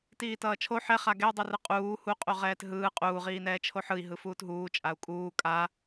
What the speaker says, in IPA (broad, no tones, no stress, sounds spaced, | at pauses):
t iː t ʌː t͡ʃʰ o ħ ɛ χ a ɡ ɛ u̯ dˤ ɯ r ɯ qʼ uː h u qʼ u ʁ ɛː t ɦ ɯː qʼ uː ʁ iː n ɛː t͡ʃʰ o ħ ɯ i̯ ɦ ɯ f uː t ɦ uː t͡ʃʼ a u̯ kʼ uː kʼ a